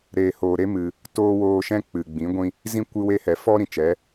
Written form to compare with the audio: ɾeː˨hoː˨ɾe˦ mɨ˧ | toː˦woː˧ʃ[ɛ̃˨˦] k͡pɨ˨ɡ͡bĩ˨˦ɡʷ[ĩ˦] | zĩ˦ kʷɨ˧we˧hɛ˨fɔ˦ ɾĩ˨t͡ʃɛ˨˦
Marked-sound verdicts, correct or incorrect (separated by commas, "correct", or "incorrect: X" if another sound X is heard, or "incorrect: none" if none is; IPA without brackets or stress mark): incorrect: ɛ̃˦, correct